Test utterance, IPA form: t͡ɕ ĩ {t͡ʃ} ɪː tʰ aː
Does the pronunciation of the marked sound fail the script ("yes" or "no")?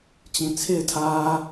yes